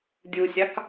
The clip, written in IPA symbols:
dʲ u sʲ ɑ k

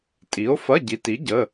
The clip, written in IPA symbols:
tʼ i˨˥ o̯ f ɐ˧˥˧ ɟ i˨˥ t i˨˥ ɟ ə˧˥˧

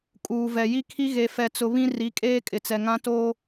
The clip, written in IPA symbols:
kʼ uː˨ v ɛ˨ j i˦ kʰ i˦ ɣ e˨ f ɛ˨ t͡s ʊ˨ β ĩ˦ r i˨˦ kʼ eː˦ kʼ ɪ˨ t͡s ɛ˨ ŋ ã˦ t oː˦

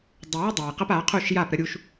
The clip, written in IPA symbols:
dˤ ə˨ w ə˦ dˤ a˨ j q ə˦ p a˨˦ qʰ u˦˨ ʃ j a˦˨ p ɾ ə˦ ɾʲ u˦ ʃ

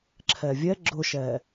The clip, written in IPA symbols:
ǁʰ ɛ vʲ ɛ ɡ͡ǁ ʊ ʃ ɛː

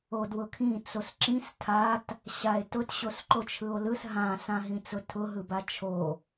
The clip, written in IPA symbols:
o d w ʊ kʰ ĩ t͡s o s ǁ ĩ s tʰ a t | ɕ a e̯ t ʊ t ɕ o s ǃ o t͡ʃʰ ɯ o̯ l ɯ s ɦ ã s ã ɦ ĩ t͡s ʊ tʰ ʊ ɦ ɯ b a t͡ʃʰ o

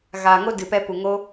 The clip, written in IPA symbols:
ɣ aː˨ ŋ o˦ d ɨ˨ p ɛ˧ p u˨ ŋ o˦

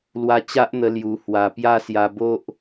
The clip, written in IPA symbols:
l w a˧ t͡ɕ a˦ ʔ n̪ ə˧ l j u˨˩ h w a˧ p j a˦ s j a˧ b o˦ ʔ

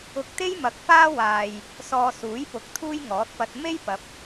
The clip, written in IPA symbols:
ʊ˧ k̚ t̪ e˥ j m ɐ˨˥ k̚ f aː˥ w aː˧ j | s ɔː˧ s uː˨˥ j p ʊ˨˥ k̚ t̪ʰ uː˥ j ŋ ɔː˨˥ t̚ p ɐ˧ t̚ m e˥ j p ɐ˨˥ p̚

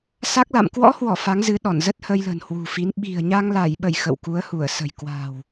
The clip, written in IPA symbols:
s a˦˥ k̚ l a̰˧˨ m k w ɔ̰˧˥ h w ɔ˧˩ f a˨˦ ŋ z ɨ˨˦ ɗ ɔ˧˩ n z ə˦˥ t̚ h ə˧ j l ə̤˨˩ n h w ṳ˨˩ f i˨˦ n ɓ i̤˨˩ ə̯ ɲ a˧ ŋ l a˧˩ j ɓ ə˧˩ j x ə̰˧˨ w k u˨˦ ə̯ h u˧˩ ə̯ s ə̤˨˩ j k w a̤˨˩ w

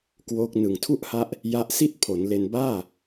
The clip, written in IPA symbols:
k w oː˦˥ k̚ n ɯ˨˩ ŋ tʰ u˥˩ ʔ h a˦˥ ʔ | j a˦˥ ʔ s i˥˩ t̚ pʰ o˩˦ n l e˧ n b aː˥˩

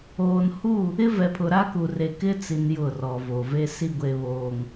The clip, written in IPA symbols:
oː˨ n h u˦˨ | ɪ˦ v ɛ˨ pʰ ʊ˨ ɾ a˦ k u˨ r e˨ k ɪ˦ t͡s i˨ n j ʊ˦˨ r ɔ˨ v o˨ v e˦ s i˦ ɡʷ e˨ β oː˨ ŋ

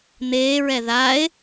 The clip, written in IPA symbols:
n̪ eː ɹ ɛ ð a e̯

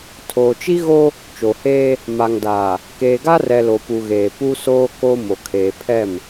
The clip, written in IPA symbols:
tʰ oː˨ t͡ʃ i˦ ɣ o˦ | t͡ʃ o˨ h eː˦ | m a˨ ŋ d aː˨ | k eː˨ ɡ a˦ r ɛ˨ l o˨ p u˨ ɣ eː˨ p u˦ s oː˦ k o˦ m o˨ kʰ eː˨ pʰ ɛ˦˨ m

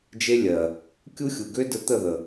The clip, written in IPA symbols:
d͡ʒ e˦ lʲ ɜ˨ | kʲ u˦ xʲ u˨ ɡ ø˦ d ə˧ t̪ ə˦˨ ð ə˨

